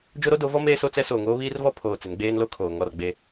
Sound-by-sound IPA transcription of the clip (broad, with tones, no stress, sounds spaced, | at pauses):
d͡ʒ o˦ ɾ o˦ d o˨˦ v ɔ˦ m eː˦ s o˦ t͡s ɛ˦ s oː˨ ŋ oː˦ β iː˦ r v ɔ˦ pʰ oː˨ t͡s ɪ˨˦ n ɡ͡b eː˦ n l o˦ kʰ oː˨ ŋ ɔ˦˨ r ɡ͡b e˦